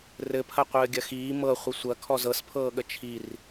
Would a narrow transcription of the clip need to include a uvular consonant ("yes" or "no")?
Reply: yes